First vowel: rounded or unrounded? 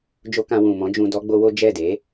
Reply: rounded